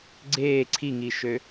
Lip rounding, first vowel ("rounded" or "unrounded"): unrounded